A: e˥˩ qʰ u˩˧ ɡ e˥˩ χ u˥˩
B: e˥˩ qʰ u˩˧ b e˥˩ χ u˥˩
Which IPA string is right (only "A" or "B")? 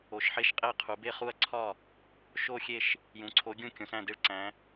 B